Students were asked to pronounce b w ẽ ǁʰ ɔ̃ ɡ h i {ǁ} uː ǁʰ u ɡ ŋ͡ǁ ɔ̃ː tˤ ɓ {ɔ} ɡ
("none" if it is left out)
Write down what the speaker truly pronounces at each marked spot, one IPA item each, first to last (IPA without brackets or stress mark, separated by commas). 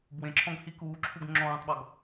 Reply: k, ɔ